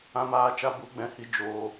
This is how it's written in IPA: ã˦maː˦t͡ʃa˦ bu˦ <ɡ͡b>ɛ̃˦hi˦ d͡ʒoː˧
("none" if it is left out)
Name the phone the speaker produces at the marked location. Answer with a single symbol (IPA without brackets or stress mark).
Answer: ɡ͡b